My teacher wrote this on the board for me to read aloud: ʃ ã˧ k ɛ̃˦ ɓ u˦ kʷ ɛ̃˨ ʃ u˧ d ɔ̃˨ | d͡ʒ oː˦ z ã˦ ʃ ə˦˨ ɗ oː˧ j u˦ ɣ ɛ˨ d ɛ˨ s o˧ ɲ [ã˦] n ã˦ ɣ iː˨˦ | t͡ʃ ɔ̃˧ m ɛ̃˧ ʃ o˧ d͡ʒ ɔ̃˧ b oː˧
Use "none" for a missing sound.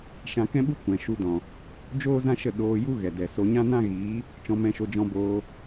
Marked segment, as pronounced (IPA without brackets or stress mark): ã˦